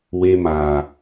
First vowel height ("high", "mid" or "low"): mid